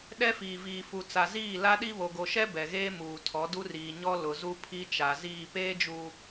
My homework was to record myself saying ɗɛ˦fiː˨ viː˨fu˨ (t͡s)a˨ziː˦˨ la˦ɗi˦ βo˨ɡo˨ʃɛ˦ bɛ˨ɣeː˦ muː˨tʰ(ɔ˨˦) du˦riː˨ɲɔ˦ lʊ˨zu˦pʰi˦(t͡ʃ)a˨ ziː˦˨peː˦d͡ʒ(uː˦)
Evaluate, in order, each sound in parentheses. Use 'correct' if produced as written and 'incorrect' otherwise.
correct, correct, correct, incorrect: uː˨

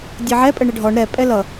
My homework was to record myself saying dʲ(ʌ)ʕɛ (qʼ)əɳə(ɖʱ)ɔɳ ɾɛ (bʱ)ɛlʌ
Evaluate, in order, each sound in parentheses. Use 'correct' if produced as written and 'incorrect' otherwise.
correct, incorrect: pʼ, correct, incorrect: pʼ

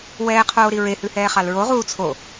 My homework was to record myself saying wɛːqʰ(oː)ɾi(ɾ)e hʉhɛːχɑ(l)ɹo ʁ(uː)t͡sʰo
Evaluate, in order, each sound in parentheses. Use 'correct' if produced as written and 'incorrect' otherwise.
correct, incorrect: ɹ, correct, correct

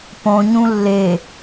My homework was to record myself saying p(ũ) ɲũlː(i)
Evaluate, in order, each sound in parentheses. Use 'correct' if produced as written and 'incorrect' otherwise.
incorrect: õ, incorrect: e

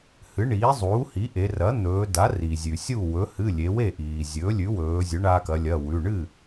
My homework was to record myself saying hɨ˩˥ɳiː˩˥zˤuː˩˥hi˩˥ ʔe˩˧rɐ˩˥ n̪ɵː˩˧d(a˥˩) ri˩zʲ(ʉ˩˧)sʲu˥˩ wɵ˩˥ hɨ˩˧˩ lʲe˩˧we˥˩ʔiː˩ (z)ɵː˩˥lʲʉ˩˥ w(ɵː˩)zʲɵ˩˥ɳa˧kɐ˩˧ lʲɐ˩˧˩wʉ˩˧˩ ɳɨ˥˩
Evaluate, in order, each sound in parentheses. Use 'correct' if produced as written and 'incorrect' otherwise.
incorrect: a˩˥, incorrect: ʉ˩, incorrect: zʲ, incorrect: ɵː˩˧

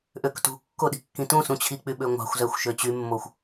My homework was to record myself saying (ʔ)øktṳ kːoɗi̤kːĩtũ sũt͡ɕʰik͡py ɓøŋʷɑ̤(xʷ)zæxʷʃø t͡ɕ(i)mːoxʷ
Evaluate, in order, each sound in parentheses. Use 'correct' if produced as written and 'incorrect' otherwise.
correct, correct, incorrect: y

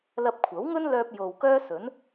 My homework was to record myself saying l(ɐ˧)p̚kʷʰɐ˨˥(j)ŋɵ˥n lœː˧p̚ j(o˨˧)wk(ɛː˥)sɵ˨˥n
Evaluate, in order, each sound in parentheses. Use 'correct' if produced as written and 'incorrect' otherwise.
correct, incorrect: w, incorrect: o˨, incorrect: œː˥

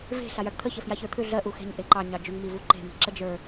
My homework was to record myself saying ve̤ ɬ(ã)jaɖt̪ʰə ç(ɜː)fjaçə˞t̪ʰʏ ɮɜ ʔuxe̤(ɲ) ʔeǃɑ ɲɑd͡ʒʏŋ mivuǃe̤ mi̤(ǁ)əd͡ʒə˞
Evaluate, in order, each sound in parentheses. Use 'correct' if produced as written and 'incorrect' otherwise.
incorrect: a, incorrect: ɜ, correct, correct

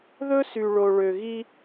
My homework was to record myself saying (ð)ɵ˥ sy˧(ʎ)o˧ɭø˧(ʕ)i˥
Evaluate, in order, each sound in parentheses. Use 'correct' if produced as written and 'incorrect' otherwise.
correct, incorrect: ɭ, incorrect: ɣ

